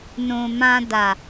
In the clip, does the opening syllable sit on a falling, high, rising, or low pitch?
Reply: low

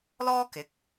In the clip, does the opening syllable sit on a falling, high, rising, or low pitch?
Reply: high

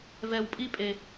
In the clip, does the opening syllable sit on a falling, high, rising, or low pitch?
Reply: high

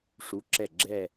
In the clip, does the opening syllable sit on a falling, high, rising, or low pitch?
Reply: rising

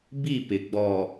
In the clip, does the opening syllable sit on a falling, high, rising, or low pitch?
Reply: falling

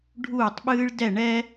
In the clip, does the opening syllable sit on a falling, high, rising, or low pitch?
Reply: falling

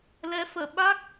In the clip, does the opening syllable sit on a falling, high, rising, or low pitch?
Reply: rising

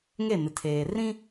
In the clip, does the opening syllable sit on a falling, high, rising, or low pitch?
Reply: falling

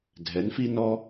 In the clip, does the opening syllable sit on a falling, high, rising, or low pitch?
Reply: rising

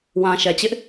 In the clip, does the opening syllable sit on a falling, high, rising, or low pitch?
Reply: low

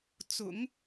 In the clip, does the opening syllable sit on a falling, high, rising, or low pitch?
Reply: low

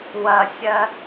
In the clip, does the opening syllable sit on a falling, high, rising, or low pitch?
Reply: high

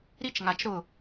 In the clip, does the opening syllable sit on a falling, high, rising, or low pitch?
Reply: high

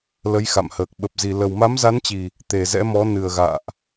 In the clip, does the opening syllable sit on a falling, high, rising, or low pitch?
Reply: rising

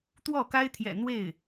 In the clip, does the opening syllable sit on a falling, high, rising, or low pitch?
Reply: falling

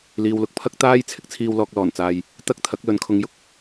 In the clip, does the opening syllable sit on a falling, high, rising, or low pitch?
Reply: low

